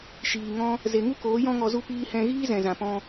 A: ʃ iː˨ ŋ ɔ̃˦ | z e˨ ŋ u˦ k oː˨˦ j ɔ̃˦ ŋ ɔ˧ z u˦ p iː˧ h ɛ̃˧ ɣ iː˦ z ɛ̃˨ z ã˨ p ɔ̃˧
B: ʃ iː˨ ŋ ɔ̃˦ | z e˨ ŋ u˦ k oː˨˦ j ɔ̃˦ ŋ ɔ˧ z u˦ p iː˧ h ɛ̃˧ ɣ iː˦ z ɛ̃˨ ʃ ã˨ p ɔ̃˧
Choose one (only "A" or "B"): A